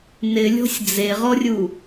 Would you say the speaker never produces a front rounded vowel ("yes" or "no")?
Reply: yes